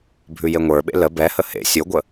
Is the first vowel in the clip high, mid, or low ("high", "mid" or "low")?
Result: high